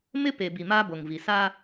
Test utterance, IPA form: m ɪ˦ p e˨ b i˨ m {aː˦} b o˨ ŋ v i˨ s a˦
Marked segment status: correct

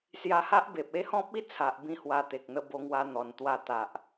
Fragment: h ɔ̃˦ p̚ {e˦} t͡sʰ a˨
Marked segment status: incorrect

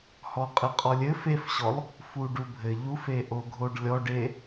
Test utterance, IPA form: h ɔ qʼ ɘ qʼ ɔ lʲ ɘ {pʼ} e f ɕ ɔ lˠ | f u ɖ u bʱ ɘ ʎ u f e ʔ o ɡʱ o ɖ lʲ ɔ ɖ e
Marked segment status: incorrect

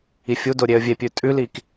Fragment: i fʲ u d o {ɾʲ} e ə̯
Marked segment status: correct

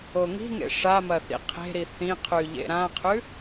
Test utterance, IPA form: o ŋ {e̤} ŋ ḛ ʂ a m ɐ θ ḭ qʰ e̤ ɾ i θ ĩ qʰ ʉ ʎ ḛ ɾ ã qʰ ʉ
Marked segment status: incorrect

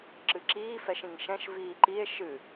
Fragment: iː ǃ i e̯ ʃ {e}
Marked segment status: incorrect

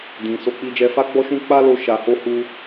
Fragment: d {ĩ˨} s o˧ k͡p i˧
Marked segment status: incorrect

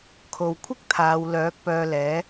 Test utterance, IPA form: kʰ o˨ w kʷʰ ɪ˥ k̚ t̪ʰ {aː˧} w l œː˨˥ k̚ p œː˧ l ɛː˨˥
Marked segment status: incorrect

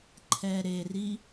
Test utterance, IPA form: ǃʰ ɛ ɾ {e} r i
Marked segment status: correct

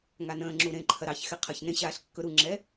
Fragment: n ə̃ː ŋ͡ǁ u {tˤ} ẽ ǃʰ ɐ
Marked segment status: incorrect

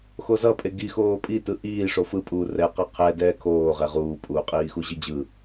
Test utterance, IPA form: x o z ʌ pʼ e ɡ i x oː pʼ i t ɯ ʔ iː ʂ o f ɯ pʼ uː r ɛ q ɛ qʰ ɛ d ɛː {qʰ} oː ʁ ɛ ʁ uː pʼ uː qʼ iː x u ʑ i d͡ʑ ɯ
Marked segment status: incorrect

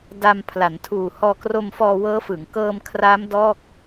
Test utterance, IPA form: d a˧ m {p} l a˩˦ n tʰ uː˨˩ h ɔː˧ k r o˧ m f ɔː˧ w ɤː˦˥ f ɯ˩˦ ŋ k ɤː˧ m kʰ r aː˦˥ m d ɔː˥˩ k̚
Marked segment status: incorrect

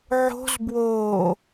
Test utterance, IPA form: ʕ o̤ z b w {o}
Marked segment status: incorrect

